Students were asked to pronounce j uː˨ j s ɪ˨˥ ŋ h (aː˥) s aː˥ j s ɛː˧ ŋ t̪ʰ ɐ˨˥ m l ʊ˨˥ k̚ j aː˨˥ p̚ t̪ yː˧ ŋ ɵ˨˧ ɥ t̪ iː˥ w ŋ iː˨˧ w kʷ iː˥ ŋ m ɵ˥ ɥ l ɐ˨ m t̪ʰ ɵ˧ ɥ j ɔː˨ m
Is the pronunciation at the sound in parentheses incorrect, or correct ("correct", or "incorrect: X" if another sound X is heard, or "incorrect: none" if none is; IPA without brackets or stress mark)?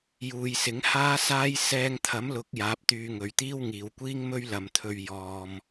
correct